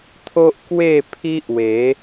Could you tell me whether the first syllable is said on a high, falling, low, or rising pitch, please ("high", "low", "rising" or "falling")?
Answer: high